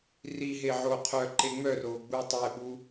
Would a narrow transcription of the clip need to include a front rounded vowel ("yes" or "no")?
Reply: yes